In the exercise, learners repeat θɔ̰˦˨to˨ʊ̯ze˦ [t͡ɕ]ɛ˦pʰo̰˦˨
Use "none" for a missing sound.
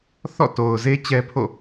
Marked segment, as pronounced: t͡ɕ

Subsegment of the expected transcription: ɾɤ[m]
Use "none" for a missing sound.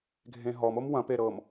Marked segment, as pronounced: m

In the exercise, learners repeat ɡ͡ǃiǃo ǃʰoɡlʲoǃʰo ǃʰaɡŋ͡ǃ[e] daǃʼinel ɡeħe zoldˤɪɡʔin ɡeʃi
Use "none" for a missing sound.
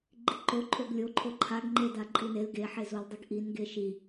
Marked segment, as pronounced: e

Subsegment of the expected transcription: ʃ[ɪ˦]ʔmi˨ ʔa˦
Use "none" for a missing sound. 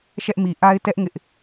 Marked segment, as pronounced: ɛ˦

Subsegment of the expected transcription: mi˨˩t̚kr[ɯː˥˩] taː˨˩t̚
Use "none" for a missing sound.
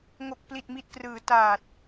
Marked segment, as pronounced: ɯː˩˦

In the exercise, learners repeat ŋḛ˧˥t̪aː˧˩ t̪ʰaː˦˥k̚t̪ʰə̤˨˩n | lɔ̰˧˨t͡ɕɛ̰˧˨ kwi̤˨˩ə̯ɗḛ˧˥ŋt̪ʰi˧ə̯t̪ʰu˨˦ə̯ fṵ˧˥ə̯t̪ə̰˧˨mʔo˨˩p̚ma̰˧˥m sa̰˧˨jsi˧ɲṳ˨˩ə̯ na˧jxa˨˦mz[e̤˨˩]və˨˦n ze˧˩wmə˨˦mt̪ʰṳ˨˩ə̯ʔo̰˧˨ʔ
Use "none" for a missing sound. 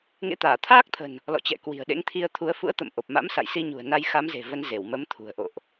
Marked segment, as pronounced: e̤˨˩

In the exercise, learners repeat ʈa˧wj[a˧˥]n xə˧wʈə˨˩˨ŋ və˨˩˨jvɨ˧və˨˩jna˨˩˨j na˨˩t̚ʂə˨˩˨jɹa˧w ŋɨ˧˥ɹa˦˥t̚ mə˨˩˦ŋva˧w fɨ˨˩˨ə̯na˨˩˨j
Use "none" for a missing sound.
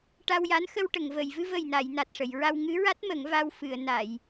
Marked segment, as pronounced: a˧˥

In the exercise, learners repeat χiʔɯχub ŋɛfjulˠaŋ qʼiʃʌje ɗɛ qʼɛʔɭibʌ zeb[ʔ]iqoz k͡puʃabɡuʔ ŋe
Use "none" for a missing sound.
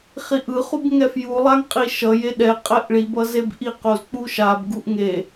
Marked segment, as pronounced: ʔ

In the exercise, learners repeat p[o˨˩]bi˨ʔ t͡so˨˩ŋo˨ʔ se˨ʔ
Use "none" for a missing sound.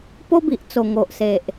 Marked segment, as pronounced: o˦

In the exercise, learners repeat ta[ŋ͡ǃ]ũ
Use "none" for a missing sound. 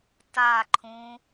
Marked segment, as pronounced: ǃʰ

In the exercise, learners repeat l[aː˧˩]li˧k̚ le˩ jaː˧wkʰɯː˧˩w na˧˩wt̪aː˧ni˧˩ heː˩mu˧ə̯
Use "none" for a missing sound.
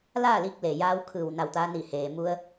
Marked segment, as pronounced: aː˥˨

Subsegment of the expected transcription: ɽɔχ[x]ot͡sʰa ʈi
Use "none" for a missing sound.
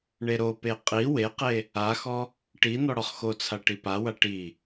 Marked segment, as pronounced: x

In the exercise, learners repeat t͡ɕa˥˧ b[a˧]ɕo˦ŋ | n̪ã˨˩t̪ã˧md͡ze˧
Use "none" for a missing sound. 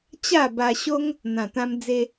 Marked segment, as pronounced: a˧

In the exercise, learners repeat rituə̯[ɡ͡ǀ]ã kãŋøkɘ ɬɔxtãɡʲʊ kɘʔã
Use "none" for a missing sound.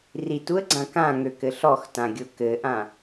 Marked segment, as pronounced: ɡ͡ǀ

